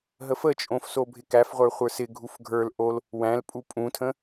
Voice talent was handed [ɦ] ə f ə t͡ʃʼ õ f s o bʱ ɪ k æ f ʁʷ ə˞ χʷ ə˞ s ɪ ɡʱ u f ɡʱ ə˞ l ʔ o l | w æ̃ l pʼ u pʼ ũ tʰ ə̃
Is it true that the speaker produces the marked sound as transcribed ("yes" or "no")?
yes